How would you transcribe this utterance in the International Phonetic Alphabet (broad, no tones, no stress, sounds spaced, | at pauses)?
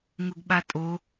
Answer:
ŋ ʊ ɡ ɓ a tʼ o